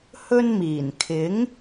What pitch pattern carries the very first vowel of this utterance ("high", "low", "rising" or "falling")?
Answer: high